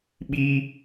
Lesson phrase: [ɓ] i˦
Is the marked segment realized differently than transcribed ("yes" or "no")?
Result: no